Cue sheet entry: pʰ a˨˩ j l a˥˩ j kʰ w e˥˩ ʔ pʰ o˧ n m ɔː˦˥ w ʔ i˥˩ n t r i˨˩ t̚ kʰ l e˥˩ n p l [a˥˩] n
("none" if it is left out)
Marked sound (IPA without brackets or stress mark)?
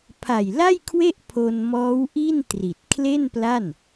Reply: a˥˩